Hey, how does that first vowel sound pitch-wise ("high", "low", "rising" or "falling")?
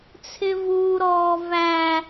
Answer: high